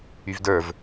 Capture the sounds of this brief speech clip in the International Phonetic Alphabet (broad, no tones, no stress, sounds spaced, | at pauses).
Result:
y v d ə˞ v